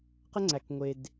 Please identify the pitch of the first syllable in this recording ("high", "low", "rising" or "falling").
high